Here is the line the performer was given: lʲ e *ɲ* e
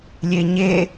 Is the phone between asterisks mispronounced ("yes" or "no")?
no